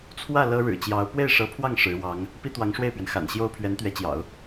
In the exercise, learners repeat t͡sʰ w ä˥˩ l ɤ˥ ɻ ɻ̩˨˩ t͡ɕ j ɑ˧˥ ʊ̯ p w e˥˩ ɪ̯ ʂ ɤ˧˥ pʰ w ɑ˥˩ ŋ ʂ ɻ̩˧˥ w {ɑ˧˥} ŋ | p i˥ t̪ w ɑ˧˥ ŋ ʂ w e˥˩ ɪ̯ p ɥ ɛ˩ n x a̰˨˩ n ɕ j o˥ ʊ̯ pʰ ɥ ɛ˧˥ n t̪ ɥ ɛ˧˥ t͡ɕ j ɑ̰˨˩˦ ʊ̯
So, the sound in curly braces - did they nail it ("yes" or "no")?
yes